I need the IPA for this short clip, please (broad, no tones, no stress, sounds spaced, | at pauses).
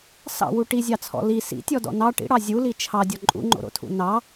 s ɑ̰ w u ʈ i zʲ ɑ t͡sʰ ɔ̰ l i s ḭ tʲ ɔ d ɔ̰ n ɑ ʈ ḭ ɽ ɑ zʲ u l i t͡ʃʰ ɑ dʲ ɔ ǃʼ ṵ ŋ͡ǃ o̰ ɾ o̰ tʰ ṵ n ɑ